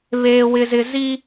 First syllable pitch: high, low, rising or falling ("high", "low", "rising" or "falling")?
high